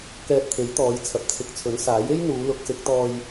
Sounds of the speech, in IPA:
kɛː˧t̚t̪ʰe˨˥jt̪ɔː˨˧j t͡sʰɐ˨p̚t͡sʰɪ˨k̚t͡sʰɵ˨˥n saː˨˥je˥j n̪uː˨˧ lʊ˨˥k̚sɪ˨˥k̚t̪ɔː˧j

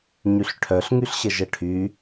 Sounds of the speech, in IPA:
ɲyɬʈʰœɬ ŋyɬɕəʒəʈʰy

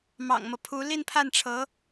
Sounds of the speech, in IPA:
mɑ̰˨˩ŋmɤ˦pʰu˧˥ li˥˧npʰa˥˩nʈ͡ʂʰɤ˧˥

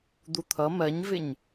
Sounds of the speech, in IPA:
d̪ut̪ʰʌ mɜɲvɪɲ

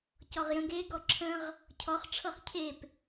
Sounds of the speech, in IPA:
cɔʁjə̃ɡ e ɡɔǁʰə̃ʁ | cʰɔχ ʈ͡ʂʰɤχcʰep

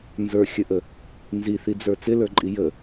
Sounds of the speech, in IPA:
nzə˞xʲəʔə | nziθid͡zə˞ t͡sɪlə˞ǃʼi jə

